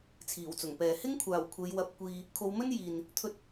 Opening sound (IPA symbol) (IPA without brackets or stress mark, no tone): t͡sʰ